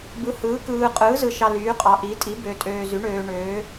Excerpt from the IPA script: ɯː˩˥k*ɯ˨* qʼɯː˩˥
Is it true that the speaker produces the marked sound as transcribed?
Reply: no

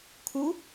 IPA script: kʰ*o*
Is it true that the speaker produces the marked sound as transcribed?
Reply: no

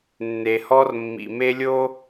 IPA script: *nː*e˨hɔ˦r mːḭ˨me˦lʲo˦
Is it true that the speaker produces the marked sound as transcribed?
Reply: yes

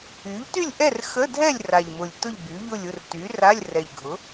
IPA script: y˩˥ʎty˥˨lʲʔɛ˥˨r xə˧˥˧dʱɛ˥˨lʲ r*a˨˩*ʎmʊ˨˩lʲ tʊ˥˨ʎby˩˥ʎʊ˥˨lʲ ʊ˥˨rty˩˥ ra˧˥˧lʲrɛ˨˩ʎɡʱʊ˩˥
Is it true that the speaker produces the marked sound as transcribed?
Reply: yes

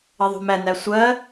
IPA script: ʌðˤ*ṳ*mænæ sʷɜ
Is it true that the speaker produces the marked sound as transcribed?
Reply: yes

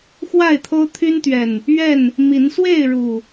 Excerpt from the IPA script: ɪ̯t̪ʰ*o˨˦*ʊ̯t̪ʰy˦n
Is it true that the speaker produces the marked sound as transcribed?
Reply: no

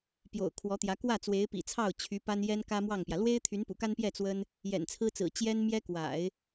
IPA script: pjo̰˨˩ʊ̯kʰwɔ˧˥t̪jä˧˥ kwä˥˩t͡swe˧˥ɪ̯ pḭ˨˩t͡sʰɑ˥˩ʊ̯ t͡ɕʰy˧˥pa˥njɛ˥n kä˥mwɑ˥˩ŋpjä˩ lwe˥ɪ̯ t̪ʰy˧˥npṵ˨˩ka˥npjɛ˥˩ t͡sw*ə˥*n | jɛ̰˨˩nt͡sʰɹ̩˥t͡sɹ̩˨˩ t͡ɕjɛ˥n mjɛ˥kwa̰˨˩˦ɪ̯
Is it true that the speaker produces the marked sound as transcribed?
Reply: yes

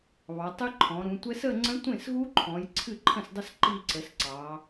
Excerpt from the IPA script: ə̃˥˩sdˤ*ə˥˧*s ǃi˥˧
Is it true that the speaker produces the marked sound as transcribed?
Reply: yes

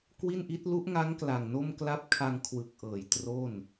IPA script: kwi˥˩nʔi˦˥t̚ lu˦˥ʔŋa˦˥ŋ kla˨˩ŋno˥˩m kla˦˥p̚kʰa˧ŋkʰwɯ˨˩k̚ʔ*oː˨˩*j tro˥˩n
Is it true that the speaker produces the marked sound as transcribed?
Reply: no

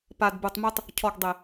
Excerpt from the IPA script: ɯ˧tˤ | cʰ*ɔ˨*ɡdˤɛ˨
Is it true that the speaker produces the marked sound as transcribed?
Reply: yes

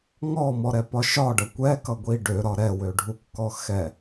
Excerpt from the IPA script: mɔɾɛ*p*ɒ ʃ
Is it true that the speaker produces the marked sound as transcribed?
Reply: yes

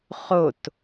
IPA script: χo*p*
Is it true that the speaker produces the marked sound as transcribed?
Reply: no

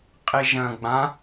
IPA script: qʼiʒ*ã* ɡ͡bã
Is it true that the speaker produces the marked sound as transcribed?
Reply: no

